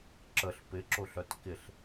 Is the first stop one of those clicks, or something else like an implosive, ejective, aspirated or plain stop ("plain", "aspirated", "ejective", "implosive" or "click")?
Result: click